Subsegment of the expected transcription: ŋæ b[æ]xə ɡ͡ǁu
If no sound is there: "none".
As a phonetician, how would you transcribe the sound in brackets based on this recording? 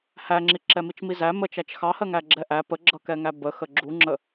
ə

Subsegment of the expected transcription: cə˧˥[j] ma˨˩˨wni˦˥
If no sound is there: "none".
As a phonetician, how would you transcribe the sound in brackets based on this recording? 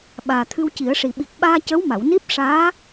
w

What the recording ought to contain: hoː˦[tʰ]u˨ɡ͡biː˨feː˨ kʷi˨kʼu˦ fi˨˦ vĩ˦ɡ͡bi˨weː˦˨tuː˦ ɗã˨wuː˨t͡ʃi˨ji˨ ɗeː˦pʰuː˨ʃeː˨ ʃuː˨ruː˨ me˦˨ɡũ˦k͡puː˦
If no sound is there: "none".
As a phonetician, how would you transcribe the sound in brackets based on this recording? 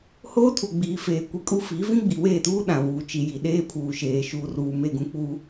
tʰ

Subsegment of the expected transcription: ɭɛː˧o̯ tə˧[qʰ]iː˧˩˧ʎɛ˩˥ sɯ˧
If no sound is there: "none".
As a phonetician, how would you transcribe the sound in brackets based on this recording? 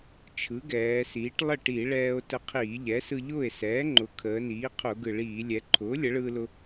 qʰ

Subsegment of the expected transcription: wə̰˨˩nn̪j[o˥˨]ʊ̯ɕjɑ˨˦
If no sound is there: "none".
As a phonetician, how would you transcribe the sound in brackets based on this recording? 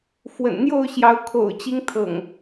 o˥˨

